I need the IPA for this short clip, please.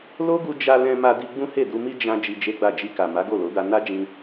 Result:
l o˦ ɡ u˧ d͡ʒ a˧ l ɛ̃˧ m a˧ d i˧ ɡ͡b ũ˦ h e˦˨ d u˧ m i˦ d͡ʒ ã˧ d͡ʒ i˧ d͡ʒ e˦ ɡ͡b a˦˨ d͡ʒ i˧ k a˨ m a˨˦ ɡ o˦˨ l o˨˦ d a˧ n a˦ d͡ʒ ĩ˧

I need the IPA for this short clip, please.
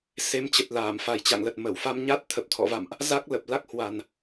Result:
s e˨˦ m t͡ɕ ə˨˩ t̚ l aː˧˩ m f a˨˩ j t͡ɕ a̰˧˨ ŋ l ə˨˩ t̚ m ə˧˩ w f a˧ m ɲ a˦˥ t̚ t̪ʰ ə˨˩ p̚ t̪ʰ ɔ̰˧˨ v a̰˧˨ m ʔ | z a˦˥ k̚ l ə˨˩ p̚ l a˦˥ k̚ h w a˨˩ n

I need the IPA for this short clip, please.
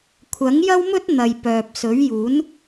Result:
kʷʰ ɐ˨˥ ŋ j ɐ˥ w m ɵ˥ t̚ n̪ ɐ˨ j p œː˨ p̚ s ɵ˨˥ ɥ j uː˨˥ n

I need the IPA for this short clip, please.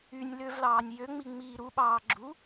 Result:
y nʲ l ø v l ɑː nʲ j ø ŋ͡m i ŋ͡m iː ɾ u ɓ ɑː ɡ͡ǁ u

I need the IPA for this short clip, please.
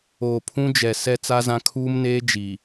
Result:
oː˨ pʰ ũ˦ d͡ʒ ɛ˨ s ɛ˦ t͡s a˦ z ã˦ kʰ uː˦ m n eː˦ d͡ʒ i˨

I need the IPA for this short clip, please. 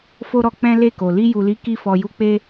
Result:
f o˦ ɾ ɔ˧ k͡p ɛ̃˦ l e˦˨ k o˨ l i˧ j u˨ l i˨˦ k i˧ f ɔ˨ j u˧ k͡p e˦

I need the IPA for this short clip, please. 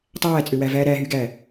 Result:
tˤ æː t͡sʼ ø w æ v æː ɾ æ ɦ y ɡ æ

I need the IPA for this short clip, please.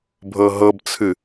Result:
bʱ ɤ ɦ ɤ b t͡sʰ ɨ

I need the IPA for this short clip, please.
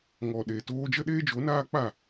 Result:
ŋ ɔ˨ ɗ e˨ t oː˧ d͡ʒ ə˦ ɗ eː˦ d͡ʒ o˨˦ n aː˦ k͡p a˦˨

